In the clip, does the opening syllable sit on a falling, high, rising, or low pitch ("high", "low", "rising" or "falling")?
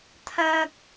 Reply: high